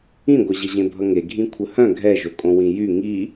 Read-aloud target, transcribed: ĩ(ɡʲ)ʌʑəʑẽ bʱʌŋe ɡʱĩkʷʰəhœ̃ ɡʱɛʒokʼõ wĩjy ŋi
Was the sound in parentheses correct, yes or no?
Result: no